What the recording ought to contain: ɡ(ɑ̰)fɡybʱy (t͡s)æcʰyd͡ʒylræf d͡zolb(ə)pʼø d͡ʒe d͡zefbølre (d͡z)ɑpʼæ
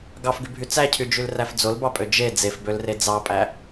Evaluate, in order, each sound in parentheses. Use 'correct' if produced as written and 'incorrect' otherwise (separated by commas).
incorrect, correct, incorrect, correct